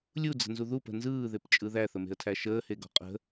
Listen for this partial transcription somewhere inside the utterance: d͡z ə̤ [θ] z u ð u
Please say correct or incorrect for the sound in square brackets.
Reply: incorrect: n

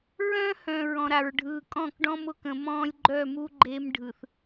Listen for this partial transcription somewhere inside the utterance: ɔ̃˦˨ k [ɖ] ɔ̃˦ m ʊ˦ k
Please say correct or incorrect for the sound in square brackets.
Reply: correct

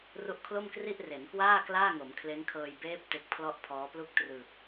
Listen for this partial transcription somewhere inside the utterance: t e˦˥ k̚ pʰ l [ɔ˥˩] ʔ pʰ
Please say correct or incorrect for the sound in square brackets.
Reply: correct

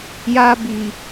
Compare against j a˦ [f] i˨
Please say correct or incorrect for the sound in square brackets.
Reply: incorrect: b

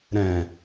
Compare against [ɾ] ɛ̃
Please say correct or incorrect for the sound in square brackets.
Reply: correct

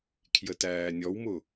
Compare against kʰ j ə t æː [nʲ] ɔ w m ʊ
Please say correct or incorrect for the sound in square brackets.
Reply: correct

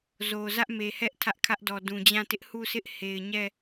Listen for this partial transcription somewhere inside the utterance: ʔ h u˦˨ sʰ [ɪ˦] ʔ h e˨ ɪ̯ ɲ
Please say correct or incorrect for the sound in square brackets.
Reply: correct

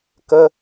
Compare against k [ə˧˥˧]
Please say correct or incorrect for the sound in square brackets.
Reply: correct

